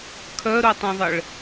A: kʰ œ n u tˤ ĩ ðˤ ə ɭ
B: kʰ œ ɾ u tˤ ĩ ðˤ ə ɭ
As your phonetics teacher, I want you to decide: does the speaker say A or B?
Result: B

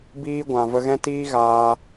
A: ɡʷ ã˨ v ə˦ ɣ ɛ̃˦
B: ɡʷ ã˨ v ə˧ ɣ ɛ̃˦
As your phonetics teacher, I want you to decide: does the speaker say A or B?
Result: B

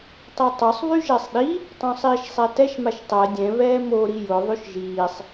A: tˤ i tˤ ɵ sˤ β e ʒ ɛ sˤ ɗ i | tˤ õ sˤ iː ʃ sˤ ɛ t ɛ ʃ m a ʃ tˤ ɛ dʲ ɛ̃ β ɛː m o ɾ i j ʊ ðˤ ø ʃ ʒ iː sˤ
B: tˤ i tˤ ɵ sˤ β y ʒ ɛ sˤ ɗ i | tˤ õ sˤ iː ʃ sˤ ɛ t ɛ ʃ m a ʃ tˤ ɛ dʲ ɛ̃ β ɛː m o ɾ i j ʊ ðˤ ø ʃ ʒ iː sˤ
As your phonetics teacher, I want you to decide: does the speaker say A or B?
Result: B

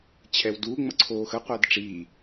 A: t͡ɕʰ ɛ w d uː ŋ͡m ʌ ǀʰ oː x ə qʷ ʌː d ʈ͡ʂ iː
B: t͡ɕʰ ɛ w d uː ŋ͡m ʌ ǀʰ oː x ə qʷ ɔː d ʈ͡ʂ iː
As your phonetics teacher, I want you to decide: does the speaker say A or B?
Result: A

